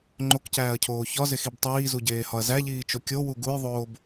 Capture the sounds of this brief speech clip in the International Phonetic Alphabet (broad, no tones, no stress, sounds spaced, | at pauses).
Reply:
ŋ͡ǃ o k c æː ɐ̯ cʰ oː ç ɒ z e x i b tˤ iː z u ɟ eː h ɒ ɐ̯ z æ ʎ iː t͡ʃ o kʲ o w u ɡ u j ðˤ oː b